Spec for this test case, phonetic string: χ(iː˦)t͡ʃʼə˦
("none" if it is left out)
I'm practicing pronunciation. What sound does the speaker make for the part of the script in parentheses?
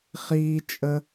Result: iː˦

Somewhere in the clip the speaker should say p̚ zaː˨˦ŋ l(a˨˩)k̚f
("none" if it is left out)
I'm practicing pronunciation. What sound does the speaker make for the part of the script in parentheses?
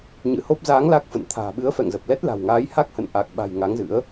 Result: a˦˥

